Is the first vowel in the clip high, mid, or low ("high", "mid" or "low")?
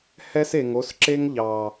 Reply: mid